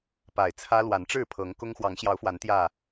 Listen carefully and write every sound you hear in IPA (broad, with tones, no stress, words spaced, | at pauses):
pa˨˩ɪ̯t͡sʰä˦ lwa˨˦nʈ͡ʂɻ̩˥˨pʰɤ˨˦ŋ kʊ˦ŋ xwɑ˨˦ŋɕjɑ˨˦ʊ̯fwa˨˦n t̪jä˥˨